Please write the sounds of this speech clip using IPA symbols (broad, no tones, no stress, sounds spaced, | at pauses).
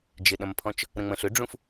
d͡ʒ ɪ ɗ ɐ̃ m pʰ ɔ̃ t͡ʃ | ɾ ə̃ ŋ͡m ə̃ ɬ ʏ ɖ͡ʐ ũ f